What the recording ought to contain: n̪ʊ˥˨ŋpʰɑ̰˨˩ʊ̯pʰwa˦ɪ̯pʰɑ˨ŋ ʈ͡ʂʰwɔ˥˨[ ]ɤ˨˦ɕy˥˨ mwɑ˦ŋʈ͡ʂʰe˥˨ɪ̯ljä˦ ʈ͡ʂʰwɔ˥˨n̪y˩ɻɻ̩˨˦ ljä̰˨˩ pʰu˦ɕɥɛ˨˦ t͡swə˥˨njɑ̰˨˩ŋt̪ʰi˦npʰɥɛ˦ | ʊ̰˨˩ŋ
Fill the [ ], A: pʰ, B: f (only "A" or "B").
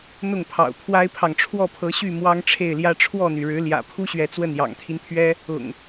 A